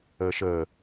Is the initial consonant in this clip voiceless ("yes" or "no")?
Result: yes